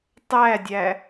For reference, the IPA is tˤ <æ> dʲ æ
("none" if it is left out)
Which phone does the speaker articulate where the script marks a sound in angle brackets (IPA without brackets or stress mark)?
æ